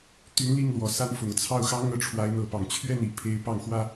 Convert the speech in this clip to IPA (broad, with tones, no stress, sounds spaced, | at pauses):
t̪ y˧˥ n l i˥˩ ŋ l w ɔ˨˩ s a˧˥ n f ʊ˨˩ ŋ t͡sʰ ɑ˥˩ ʊ̯ x ɑ˥ ŋ ɤ˥˩ ʈ͡ʂʰ w a˧˥ ɪ̯ n̪ ɤ˧˥ p ɑ˨˩ ŋ t͡ɕʰ ɥ ɛ˥˩ n i˨˩ pʰ e˧˥ ɪ̯ p ɑ˥˩ ŋ x w ä˥